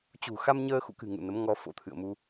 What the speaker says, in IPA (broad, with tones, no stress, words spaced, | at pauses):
t͡ɕṳ˨˩ xa˧mɲəː˧ xṵ˧˨kɨ̤˨˩ ŋṵ˧˨nə˨˦mŋɔ˧ fo̰˧˥t̪ʰɨ̰˧˨ə̯mu˧